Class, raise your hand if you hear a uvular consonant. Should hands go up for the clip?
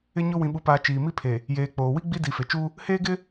no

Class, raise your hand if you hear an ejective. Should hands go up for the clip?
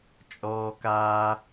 yes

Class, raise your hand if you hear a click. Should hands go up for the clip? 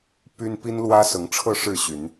no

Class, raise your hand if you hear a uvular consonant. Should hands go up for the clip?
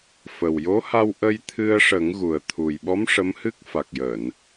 no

